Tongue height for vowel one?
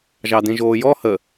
low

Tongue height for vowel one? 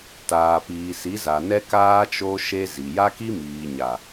low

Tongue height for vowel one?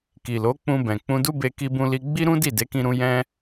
high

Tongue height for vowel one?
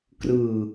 high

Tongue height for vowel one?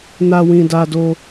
low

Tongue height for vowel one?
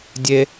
mid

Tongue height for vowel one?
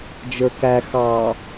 mid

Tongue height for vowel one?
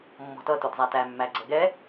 mid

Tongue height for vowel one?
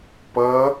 mid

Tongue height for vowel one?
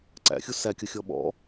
low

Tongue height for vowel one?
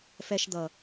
mid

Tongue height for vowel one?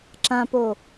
low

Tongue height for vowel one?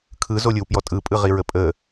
high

